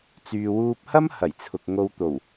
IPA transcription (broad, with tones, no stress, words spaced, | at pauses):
t͡syː˨wuː˧p̚hɐ˥m hɐ˨˩jt͡sʰʊ˨k̚ ŋo˧wt̪o˨˩w